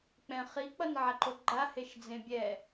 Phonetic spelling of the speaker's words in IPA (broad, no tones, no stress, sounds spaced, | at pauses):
k͡p ɛ̃ χ i k͡p ʌ n ʕ a ǃ o ɡ͡ǃ a h e ʃ d͡z ẽ bʲ ɛ